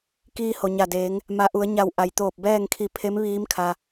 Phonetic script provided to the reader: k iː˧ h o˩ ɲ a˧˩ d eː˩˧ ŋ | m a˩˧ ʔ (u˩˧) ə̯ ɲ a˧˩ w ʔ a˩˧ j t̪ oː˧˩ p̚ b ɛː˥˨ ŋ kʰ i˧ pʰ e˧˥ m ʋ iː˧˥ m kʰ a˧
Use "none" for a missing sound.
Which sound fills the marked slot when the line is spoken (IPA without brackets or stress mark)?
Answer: u˩˧